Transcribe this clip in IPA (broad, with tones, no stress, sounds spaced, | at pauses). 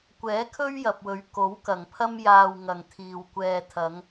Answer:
kʷ ɛː˨˥ kʰ ɵ˥ ɥ j ɐ˨ p̚ w ɵ˨˧ ɥ k o˨˥ w k ɐ˨˩ ŋ pʰ ɐ˥ m j aː˨ w ŋ ɐ˨ ŋ t̪ʰ iː˨ w kʷ ɛː˨ t̪ʰ ɐ˨˧ ŋ